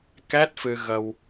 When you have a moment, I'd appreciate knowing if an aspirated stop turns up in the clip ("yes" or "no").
no